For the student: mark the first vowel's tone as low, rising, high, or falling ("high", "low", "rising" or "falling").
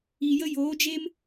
low